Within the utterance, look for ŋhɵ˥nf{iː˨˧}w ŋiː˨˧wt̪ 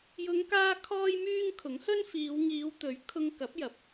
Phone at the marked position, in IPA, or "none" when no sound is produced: iː˨˧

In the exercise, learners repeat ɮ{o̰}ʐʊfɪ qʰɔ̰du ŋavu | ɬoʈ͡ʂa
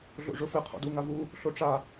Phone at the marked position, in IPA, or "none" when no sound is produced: o̰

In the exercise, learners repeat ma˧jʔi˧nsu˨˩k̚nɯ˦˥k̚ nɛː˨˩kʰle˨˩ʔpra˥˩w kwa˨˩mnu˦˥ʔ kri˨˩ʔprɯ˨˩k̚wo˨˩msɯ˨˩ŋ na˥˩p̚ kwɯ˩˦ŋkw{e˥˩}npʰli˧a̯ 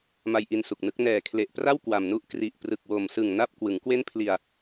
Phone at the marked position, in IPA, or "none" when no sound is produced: e˥˩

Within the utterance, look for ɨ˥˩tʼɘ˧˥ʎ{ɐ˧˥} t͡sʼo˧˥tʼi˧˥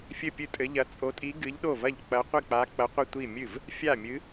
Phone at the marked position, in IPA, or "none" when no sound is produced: ɐ˧˥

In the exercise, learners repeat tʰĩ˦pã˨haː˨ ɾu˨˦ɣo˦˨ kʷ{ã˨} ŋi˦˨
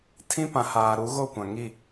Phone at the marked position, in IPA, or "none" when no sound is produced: ã˨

